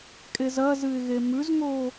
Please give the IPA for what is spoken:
kʼezɐzɨɪ̯ɣe mʉzŋo

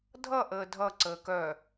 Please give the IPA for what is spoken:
dʱʌʔəː dʱʌǀəː kœ

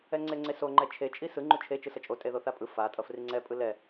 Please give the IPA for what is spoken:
ɛŋ͡ǀeŋ͡ǀeso ŋ͡ǃɛt͡ʃʰe t͡ʃʼisɯ ŋ͡ǃut͡ʃʰe t͡ʃɯsʌt͡ʃʼotʼe ðoθapʼɯ fatʼʌ friŋ͡ǀɛpʼɯ lɛ

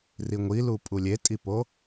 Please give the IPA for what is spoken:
riŋʷilu pʼulʲetʼipo

